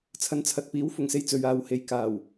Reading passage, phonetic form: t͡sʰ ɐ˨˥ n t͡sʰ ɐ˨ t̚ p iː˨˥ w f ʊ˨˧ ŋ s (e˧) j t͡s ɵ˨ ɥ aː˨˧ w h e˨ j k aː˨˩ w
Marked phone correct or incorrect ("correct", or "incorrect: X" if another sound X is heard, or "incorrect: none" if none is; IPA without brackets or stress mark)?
correct